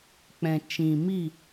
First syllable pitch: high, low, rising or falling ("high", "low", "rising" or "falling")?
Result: low